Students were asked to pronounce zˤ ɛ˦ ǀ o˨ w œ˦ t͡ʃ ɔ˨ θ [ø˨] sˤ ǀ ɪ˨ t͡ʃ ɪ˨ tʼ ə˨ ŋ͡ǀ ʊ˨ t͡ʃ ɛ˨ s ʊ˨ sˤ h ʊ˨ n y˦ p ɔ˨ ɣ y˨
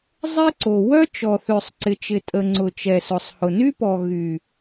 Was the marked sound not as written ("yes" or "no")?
no